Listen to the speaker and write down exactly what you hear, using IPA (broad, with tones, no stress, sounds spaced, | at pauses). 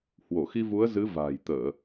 h w o˧˩ x i˧ v u˨˦ ə̯ z ɨ˨˦ v a̤ː˨˩ j t̪ əː˧˩˨